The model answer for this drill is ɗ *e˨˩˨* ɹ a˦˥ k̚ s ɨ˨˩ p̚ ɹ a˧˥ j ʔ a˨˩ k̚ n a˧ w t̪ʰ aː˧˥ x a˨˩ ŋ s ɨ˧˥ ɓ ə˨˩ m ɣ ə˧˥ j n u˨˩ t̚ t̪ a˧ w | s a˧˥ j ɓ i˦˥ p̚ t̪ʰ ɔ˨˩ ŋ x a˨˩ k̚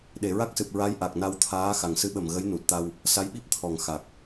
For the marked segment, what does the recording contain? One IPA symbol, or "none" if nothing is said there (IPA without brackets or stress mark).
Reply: e˨˩˨